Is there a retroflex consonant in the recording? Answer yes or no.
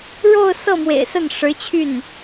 yes